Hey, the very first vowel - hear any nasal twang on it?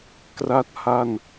no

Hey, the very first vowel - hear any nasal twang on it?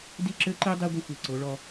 no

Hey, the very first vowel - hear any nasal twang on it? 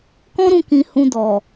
yes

